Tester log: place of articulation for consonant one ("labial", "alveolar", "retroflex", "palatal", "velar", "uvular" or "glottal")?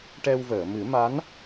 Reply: retroflex